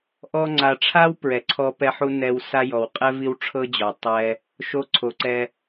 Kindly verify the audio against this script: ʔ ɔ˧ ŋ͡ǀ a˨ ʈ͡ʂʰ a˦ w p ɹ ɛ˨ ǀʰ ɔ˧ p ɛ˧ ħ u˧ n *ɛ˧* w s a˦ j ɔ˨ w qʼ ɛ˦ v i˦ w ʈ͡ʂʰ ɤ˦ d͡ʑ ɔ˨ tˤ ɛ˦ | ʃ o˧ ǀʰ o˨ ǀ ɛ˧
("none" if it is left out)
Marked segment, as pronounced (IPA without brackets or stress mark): ɛ˧